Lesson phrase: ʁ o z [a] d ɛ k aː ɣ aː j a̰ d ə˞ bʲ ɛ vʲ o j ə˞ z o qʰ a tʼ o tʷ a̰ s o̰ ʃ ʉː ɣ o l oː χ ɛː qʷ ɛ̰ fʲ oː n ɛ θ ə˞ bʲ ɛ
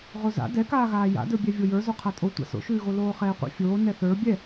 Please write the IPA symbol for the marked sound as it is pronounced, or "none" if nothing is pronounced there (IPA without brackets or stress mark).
a̰